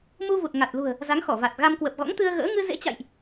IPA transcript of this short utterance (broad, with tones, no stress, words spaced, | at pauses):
mu˧vu˨˩t̚ŋa˨˩t̚lṳ˨˩ə̯ | za˨˦ŋxɔ˧˩va˨˩t̚ɣa˧m kwə˨˩p̚ɣɔ̰˧˥ŋ t̪ɨ˧ə̯ɣə̰ː˧˥ ŋɨ˧zḛ˧˥t͡ɕa̰˧˨jʔ